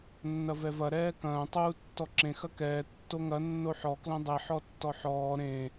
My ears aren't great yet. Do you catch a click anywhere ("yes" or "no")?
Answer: yes